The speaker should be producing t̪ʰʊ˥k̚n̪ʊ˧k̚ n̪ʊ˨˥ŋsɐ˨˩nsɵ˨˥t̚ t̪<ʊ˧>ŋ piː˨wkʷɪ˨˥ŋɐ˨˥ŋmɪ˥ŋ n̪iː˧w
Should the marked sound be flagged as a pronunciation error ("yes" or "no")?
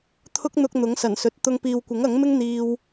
no